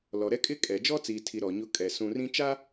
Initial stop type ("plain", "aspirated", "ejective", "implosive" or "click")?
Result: ejective